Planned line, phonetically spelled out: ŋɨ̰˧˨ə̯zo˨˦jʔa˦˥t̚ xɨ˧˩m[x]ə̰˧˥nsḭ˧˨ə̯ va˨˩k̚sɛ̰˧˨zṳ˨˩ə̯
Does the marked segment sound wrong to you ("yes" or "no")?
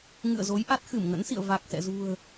yes